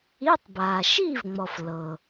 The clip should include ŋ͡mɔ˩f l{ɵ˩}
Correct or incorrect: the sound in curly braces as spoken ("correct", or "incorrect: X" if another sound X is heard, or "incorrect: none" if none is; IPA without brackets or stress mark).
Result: incorrect: ɤ˩